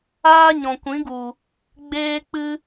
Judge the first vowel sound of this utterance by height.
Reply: low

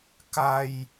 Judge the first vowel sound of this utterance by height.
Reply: low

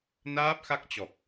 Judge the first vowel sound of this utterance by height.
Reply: low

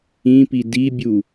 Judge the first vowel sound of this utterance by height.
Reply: high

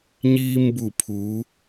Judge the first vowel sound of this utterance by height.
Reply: high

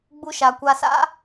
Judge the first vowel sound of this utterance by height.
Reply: high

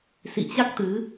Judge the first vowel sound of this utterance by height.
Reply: high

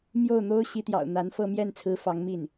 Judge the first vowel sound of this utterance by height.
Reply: mid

